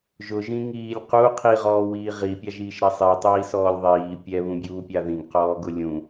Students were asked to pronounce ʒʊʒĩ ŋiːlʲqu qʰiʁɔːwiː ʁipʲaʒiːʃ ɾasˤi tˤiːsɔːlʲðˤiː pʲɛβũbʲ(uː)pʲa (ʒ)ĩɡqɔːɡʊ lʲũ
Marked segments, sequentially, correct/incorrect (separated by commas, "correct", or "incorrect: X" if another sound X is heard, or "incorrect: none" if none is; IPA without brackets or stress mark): correct, incorrect: ð